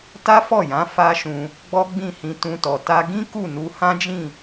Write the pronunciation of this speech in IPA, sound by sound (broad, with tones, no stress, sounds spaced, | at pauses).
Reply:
t a˦ f ɔ˦˨ j ã˨˦ f a˦ ʃ ũ˧ | ɡ͡b ɔ˦ ɡ͡b ĩ˦˨ h ĩ˧ t ũ˧ t ɔ˨ t a˧ ɡ ĩ˦ k u˦˨ n u˧ h ã˦ d͡ʒ ĩ˦˨